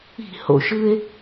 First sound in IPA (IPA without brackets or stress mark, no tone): i̤